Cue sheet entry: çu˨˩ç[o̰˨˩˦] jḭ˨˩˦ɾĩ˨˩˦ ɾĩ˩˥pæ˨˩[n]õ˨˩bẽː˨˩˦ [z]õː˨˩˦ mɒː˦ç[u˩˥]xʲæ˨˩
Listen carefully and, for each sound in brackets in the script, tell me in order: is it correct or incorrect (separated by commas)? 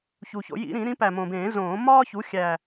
correct, incorrect, correct, correct